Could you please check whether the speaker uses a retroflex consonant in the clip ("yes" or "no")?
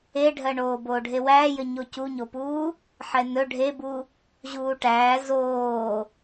yes